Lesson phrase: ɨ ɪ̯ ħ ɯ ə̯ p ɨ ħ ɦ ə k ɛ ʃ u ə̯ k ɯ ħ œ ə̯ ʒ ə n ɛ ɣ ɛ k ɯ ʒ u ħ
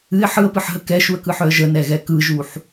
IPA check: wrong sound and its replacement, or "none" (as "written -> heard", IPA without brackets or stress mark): none